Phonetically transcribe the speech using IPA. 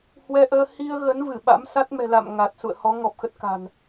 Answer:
hwɛ˧ʔəː˧ hi˧ə̯ɣə˨˦n vɨ˧˩ɓa̰˧˥msa˦˥t̚ mɛ̤˨˩ la̰˧˨m ŋa˨˩t̚ sṵ˧˨ə̯hɔ˨˦ ŋɔ˨˩p̚xə˦˥t̚ ka̤˨˩n

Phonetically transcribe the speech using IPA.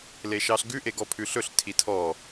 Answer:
leʃɑɬɡʉ ʔeɡɔpʰʉɬɵɬ tʰitʰɔ

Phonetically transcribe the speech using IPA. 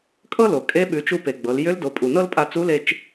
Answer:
kʼɤ˥lo˩ kʼe˧˥ɓʉ˩˧t͡ʃu˧pe˩ ɡ͡bɤ˩˧l jʏ˧˥ldo˩˧ pʼu˩nɤ˥lpʼa˧ t͡su˧˥le˧t͡ʃ

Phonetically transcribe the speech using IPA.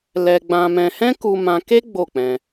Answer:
lɛ˧ɡ͡bã˧mɛ̃˧ hɛ̃˦ku˧mã˧ke˦ ɡ͡bo˦˨k͡pɛ̃˧

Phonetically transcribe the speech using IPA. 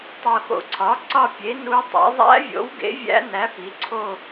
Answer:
tˤo˨xo̰˨ǀʰɒ˩˥ ǀɒ˦˨pʲe˩˥ nu˧˥ tˤḛ˩˥ ðˤæ̰˧˥vʲo̰˩˥wɡḛ˩˥ vʲæ̰˧˥næ˩˥ pi˩˥ǀʰo˦˨

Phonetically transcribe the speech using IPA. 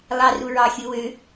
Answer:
lˠɑru ɹɑ xʲɯ wø

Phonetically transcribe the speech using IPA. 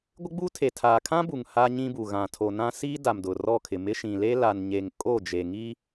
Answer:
ɡʷɪ˦ɡ͡buː˦tʰe˨ tʰaː˨kʰã˦bu˨ŋ ha˦ɲĩ˦bu˨ ɣã˨tʰo˨nã˦ siː˦ da˨mdʊ˨ rɔ˦˨kʰɪ˨mɪ˦ ʃĩ˨le˦ la˨nɲe˨ŋkʼo˦˨d͡ʒe˨ ŋi˦

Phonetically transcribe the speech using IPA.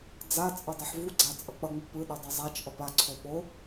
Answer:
d͡zat͡sʼʌ dˤeħvuɡ͡ǀa t͡sʼʌk͡pʌŋ͡mɯ pɯɗe dˤʌzˤat͡ʃʔʌp aǀʰo ɓo

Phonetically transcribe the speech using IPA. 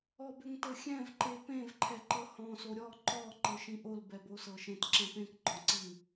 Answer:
ɔbʏŋtɤxʲɛ̃v ǃepẽv ǃʰɛǃɤhɔ̃ soɾʲɔ ǃɔ ǃɤʃĩʔol bɛbosɤʃẽt ǁɛ̃pẽk ɡ͡ǃɔ̃ǀiŋ

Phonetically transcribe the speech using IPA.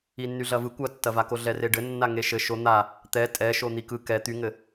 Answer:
inːyɮɐvɯ kʷɐtːɐvako ɮɛreɖɘ nːaŋeʃɘ ʃo n̪a | t̪ɛ tʼɛʃo n̪ikɯ kɛ t̪yŋɘ

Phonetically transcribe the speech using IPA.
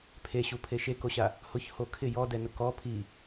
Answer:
pʰeɕupʰe ʃekoɕa | hʊçho kʰɪ jɔdɛnʊ kɔ pʰi

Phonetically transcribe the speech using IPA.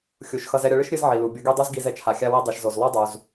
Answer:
xʲu˩ʃxʌ˧z ɛ˧ɾʲʌ˧ɭɨ˥ʃ ɾʲɨ˥z ʕi˩lu˩bʲʌ˧ɡe˥ dˤu˥zɡi˧z ɛ˩t͡ʃʰa˩xʲa˧wi˧ dˤi˩ʃzo˩z lˠo˥dˤu˩z

